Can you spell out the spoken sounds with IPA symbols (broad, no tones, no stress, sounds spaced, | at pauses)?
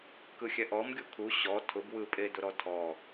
k ɯ xʲ ɛ ʔ ɔ m ɡʲ u kʰ u ɕ ɔ tʰ ʊ b w ɯ pʼ e d ʊ ɾ ɔ tʰ ɔ